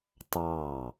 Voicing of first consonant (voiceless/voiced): voiceless